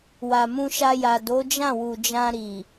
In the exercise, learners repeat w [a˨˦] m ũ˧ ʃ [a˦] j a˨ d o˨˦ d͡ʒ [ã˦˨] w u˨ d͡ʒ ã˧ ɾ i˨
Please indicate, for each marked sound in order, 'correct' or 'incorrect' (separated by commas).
incorrect, incorrect, correct